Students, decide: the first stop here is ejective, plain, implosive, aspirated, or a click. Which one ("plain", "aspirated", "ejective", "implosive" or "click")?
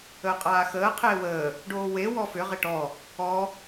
ejective